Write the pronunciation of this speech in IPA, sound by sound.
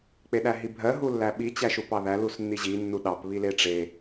k͡peɗæɦibʱɜ ɦulːæɓi t͡ɕæʃupɑðæ lusnːiʑi nːuɗɑp βileʈ͡ʂe

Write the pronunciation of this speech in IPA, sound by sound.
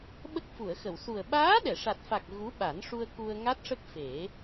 ɓə˦˥k̚fu˨˩˨ə̯xə˨˩˨w su˨˩ə̯ ɓaː˧˥ɗɛ˨˩˨ʂa˨˩t̚fa˨˩k̚ ɣu˧˥ɓa˨˩˦nʂu˧ə̯ ku˧ə̯ ŋa˦˥t̚ʂə˦˥k̚fe˨˩˦

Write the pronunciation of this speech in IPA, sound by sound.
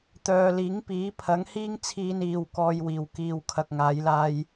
t̪œː˨liː˨˥ŋpiː˨˥ pʰɐ˨˥ŋhiː˥ŋt͡sʰiː˧niː˨w kɔː˧jwiː˨w kiː˨wkʰɐ˨k̚ŋaː˨˧jlaː˧j

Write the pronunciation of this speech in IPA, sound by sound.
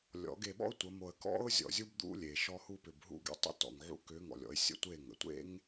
lʲɔ̰˨˦ɡe˧ɓɔ̰˦ʊ̯ tʷə˨˦mo˧ə̯ kɔ̰˦ʊ̯ zʲɔ̰˨zʲu˧b d̪ṵ˦lʲe˨ ʃɔ˧hu˧ pʏ˨bɦṵ˦˨ ɡḛ˧tˤə̰˦ tɔ̰˨ŋʕṵ˧kʏ˨˦ŋɔ̰˨lʲ ɔ̰˦ɪ̯ sʲə̰˦˨tʷe˦˨ŋə̰˨ tʷḛ˦ŋ

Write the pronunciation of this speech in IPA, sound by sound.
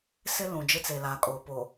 sɪ˦ lũ˨d͡ʒɪ˦t͡se˨ laː˨kʼoː˨ po˨

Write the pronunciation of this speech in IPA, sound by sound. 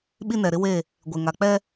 ɓi˦nɛ˨ ɾɪ˦we˦˨ | ɡʷe˨ŋa˨k͡pɛ˦

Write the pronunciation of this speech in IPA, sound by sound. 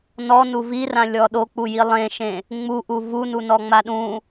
nɔnu virãlʲɔ ɗok͡puji lˠẽʃẽ | ŋ͡muʔu vununɔŋ͡ma ɗũ

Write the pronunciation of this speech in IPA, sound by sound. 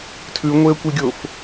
tʰʉŋʷeə̯kʷiɡʲof

